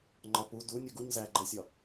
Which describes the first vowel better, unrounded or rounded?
rounded